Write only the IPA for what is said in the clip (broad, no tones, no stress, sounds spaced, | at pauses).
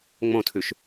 ŋ͡m õ tʰ ʉ ʃ